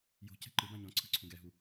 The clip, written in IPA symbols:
j o̤ c ɛ̤ ǃ ɯ b ã ɲ ɔ̃ ǀʰ ɯ ǀʰ ũ ɡ ɛ ɦ u

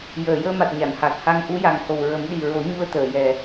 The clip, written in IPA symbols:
j əː˨˩˨ j əː˧ m a˨˩ t̚ ɲ a˨˩˨ n h a˨˩ k̚ h a˧ ŋ ʔ u˧˥ j a˨˩ ŋ h o˨˩ w ɹ ə˨˩˦ m ɗ i˨˩ ɹ o˨˩˦ ɲ u˧ ə̯ t̪ əː˨˩˨ j ɛ˨˩

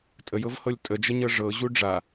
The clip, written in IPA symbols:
tʼ ə j ɤ v h ɤ lʲ tʼ ə d͡ʒ ə ɲ ɤ ʐ ɤ ʑ u ɖ͡ʐ a

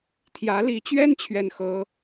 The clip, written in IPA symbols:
t̪ʰ j ä˧˥ l i˧˥ t͡ɕ ɥ ɛ˥ n t͡ɕʰ ɥ ɛ˥˩ n x ɤ˥

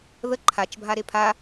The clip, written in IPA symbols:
ð ə ǃʰ a t͡ʃ bʱ a ɾ e pʰ a

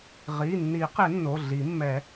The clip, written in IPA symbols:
ʁ i˩˧˩ nː i˨˩˦ q ɪ˨˩˦ nː o˩˧˩ ɮ i˨˩˦ mː ɛ˨˩˦

